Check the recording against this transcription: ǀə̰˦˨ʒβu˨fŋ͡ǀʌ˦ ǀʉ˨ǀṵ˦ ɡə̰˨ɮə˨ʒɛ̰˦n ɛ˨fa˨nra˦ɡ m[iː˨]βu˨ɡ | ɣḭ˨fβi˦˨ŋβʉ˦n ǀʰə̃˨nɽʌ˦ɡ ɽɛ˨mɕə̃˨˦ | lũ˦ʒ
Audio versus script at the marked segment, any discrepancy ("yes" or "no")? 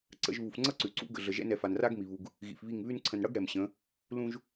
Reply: yes